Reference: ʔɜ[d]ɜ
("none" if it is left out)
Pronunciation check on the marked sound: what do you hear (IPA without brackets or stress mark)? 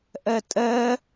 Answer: tʼ